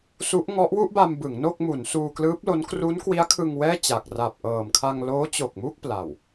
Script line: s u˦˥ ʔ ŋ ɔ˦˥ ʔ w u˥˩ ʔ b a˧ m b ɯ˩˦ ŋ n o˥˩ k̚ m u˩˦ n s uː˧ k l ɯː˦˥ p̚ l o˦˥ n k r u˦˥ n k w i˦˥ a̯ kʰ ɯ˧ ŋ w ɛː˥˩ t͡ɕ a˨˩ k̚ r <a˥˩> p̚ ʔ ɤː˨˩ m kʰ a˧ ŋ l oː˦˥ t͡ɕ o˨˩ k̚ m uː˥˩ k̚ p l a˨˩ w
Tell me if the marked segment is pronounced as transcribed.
no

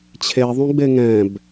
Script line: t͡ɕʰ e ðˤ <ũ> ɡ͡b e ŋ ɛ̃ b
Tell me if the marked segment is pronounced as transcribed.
yes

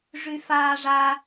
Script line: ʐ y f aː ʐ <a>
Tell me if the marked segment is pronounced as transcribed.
yes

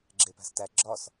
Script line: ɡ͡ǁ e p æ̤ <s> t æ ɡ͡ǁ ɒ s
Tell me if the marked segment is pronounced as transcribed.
yes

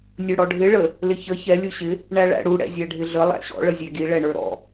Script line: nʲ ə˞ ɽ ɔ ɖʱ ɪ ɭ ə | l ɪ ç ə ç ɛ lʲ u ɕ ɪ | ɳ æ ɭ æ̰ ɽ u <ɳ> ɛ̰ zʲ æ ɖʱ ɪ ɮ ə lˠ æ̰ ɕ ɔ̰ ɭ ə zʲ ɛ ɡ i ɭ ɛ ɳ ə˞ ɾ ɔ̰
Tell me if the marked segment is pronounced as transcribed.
no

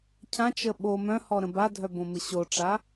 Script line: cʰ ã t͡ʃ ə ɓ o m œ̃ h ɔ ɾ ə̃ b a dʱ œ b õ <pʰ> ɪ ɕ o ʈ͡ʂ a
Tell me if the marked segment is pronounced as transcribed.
no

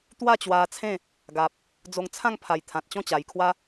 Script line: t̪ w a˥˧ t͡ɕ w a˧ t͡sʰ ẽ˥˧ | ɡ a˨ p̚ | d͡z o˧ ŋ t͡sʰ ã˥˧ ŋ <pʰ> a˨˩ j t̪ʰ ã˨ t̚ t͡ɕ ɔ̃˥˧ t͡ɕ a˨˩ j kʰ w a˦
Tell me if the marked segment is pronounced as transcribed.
yes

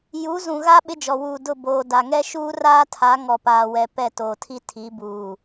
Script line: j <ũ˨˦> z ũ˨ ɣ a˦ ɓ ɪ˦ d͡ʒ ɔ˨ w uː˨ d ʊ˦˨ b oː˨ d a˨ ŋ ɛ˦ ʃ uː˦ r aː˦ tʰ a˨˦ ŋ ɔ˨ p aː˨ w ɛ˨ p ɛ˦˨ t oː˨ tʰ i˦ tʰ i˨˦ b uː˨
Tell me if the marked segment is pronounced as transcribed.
no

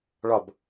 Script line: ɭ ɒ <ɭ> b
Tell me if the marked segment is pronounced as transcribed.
no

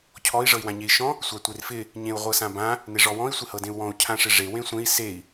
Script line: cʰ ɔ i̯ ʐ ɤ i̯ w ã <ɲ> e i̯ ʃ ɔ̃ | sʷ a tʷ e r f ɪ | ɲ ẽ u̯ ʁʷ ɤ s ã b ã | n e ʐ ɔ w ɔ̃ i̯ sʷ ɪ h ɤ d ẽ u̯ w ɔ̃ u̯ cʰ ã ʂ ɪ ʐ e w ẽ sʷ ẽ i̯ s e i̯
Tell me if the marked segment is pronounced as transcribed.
yes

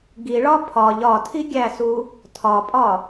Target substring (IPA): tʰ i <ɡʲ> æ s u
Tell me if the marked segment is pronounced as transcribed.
yes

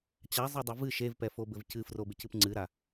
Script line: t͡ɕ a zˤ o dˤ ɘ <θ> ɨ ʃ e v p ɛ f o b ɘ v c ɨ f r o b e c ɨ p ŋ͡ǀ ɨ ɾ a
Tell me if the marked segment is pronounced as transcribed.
no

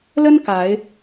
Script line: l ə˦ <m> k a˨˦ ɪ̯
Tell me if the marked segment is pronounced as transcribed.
no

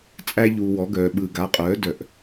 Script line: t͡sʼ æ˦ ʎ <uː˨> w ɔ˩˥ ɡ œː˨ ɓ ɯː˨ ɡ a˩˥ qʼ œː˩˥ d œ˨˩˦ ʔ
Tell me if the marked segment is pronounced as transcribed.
yes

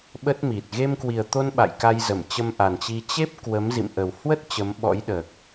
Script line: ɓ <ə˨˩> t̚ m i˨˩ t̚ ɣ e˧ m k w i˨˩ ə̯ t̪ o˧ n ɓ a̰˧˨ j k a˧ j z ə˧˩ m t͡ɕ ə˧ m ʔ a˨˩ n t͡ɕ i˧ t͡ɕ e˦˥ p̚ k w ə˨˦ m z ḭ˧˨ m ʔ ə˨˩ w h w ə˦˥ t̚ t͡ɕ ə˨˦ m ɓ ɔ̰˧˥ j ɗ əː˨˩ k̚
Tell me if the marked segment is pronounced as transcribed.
no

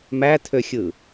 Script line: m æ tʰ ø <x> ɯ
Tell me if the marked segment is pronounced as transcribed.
no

